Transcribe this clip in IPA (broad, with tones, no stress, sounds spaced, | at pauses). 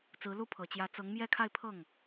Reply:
t͡s ɹ̩˧˥ l u˥˩ pʰ ɤ˨˩ t͡ɕ j ä˧˥ t͡s ɤ˧˥ ŋ m j ɛ˥˧ kʰ a˥˧ ɪ̯ pʰ ɤ˥˩ ŋ